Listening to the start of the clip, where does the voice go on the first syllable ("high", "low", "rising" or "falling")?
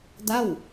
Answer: falling